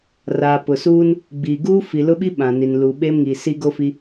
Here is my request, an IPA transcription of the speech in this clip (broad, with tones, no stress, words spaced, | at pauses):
raː˨ pʊ˨suː˦n | ɡ͡biː˨ ɡuː˦fi˨lʊ˦ɓi˦ ɓã˨ni˨n luː˨ɓeː˦mŋiː˨ si˦ɡo˦fi˦